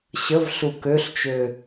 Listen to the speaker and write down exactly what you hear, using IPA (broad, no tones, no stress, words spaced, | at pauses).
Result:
ɕəvɬu køɬt͡ʃø